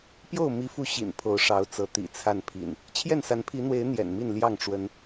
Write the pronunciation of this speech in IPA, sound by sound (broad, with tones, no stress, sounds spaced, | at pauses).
p j o˥˨ ʊ̯ m i˨˦ f u˨˦ ɕ ḭ˨˩ n pʰ o˨˦ ʊ̯ ʂ ɑ˨˦ ʊ̯ t͡s ɤ˨˦ t̪ ḭ˨˩ t͡sʰ a˥˨ n pʰ ḭ˨˩ n | t͡ɕʰ j ɛ˥˨ n s a˨˦ n pʰ i˨˦ n̪ w e˨˦ ɪ̯ n̪ j ɛ̰˨˩ n m i˥˨ n l j ɑ˥˨ ŋ ʈ͡ʂ w ə˨˦ n